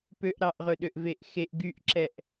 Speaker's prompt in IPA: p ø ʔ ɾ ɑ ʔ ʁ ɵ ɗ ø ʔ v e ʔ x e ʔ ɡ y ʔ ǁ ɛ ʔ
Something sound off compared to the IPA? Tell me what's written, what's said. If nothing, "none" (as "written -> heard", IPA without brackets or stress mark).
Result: none